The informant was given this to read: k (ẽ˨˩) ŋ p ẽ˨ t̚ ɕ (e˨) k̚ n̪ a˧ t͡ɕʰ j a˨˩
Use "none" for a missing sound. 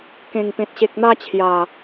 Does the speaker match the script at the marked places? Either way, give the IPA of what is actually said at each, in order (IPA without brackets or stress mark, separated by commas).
ẽ˨˩, e˨